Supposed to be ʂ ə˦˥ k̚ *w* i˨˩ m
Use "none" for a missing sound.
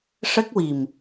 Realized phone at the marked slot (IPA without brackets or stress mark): w